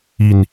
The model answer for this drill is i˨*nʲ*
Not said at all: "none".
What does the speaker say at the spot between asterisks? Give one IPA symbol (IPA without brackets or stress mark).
n